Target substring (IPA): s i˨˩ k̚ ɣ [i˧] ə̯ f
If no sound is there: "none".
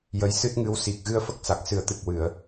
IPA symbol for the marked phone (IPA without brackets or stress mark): ɨ˧